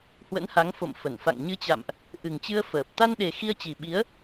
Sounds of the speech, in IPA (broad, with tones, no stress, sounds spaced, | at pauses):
h w ə̰˧˥ n h a˨˦ ŋ f o̰˧˨ m f ə˧˩ n f a̰˧˨ ŋ ɲ ɨ˧ t͡ɕ a̰˧˨ m ʔ | ʔ ɨ˨˩ ŋ t͡ɕ ɨ˧ ə̯ f əː˨˩ p̚ t̪ a˧ n ɗ e˨˩ x i˧ ə̯ t͡ɕ i˨˩ ɓ i˨˦ ə̯